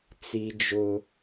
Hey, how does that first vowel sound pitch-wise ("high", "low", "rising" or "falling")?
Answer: high